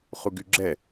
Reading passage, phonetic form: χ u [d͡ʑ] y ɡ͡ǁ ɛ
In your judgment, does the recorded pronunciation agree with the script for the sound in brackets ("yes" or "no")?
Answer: no